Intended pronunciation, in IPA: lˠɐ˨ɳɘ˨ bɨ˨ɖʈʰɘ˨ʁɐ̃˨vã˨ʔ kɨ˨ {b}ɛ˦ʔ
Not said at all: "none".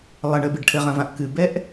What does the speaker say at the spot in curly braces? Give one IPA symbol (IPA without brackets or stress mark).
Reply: b